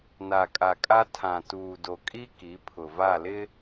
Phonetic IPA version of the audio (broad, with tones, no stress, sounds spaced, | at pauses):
n a˨ kʼ a˨ kʼ a˦ tʰ ã˨ t uː˨ d o˨ kʼ i˦ k i˨˦ pʰ ʊ˨ v a˦˨ l ɪ˦